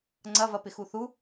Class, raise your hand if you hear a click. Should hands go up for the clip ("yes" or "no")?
yes